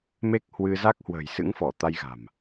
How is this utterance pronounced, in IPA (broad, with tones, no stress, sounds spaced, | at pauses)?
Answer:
m e˦˥ k̚ h w ɨ˧ z a˦˥ k̚ h w ə̤ː˨˩ j s ɨ̰˧˥ ŋ f ɔ˧˩ t̪ a˧ j ɣ a̤˨˩ m